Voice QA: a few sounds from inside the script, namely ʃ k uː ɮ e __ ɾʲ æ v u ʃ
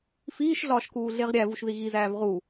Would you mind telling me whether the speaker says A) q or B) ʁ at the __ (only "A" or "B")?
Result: B